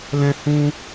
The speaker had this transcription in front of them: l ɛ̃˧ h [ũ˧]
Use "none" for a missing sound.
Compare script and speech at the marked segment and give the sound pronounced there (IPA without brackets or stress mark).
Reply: ũ˧